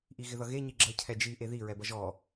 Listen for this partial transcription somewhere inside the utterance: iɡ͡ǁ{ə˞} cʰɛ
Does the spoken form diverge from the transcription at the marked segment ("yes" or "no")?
yes